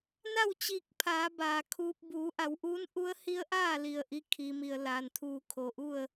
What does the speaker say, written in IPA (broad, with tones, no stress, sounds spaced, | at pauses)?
n a˥˨ w t͡ɕ iː˧˩ k̚ pʰ aː˩˧ b aː˩ kʰ uː˧ p̚ b uː˩˧ ʔ a˩˧ w ʔ uː˧˥ n ʔ u˧˥ ə̯ h i˧˥ ə̯ ʔ aː˥˨ l i˧˩ ə̯ ʔ i˧ kʰ i˩ m i˩ ə̯ l aː˩ n t̪ʰ uː˧˩ kʰ o˩ ʔ u˥˨ ə̯